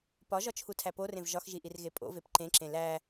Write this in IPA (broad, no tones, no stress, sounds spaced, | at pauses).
p ɒ ʒ ɒ t͡ʃʰ u tʰ æ p o r ẽ v ʒ ɒ x ʒ i ʔ i r ɣ e pʼ o̰ v e p ǃ ẽ ǁ ẽ l æ